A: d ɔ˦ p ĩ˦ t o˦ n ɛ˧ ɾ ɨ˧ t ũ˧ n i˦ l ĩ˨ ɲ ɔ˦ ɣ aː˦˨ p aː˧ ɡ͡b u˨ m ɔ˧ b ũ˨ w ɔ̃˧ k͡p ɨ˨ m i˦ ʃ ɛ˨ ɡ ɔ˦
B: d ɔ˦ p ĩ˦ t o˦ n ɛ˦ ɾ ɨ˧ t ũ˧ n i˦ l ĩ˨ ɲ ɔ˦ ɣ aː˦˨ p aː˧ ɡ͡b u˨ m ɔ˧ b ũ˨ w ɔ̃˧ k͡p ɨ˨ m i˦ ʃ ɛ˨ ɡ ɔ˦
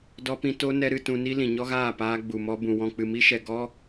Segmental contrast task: B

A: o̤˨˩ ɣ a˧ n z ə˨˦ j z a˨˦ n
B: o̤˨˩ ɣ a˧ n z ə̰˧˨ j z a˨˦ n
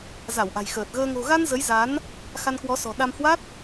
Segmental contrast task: A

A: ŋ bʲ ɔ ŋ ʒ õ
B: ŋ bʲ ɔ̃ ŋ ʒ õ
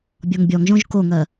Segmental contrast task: A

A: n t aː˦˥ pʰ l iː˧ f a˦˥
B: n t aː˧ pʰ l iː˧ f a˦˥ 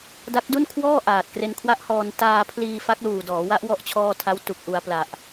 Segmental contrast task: B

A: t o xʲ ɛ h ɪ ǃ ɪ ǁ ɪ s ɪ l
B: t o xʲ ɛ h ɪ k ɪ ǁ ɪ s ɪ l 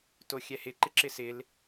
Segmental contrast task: A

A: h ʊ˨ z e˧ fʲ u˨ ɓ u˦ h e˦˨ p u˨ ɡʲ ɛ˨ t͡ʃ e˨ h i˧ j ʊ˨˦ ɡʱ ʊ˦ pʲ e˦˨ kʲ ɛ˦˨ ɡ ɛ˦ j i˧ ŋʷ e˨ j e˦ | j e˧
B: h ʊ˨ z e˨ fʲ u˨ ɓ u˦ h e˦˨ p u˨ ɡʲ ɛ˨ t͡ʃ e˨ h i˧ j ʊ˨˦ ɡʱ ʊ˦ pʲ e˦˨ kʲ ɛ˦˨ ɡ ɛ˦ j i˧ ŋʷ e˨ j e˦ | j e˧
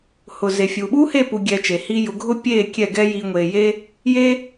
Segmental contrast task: B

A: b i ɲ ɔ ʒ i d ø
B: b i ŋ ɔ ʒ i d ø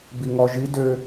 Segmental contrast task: B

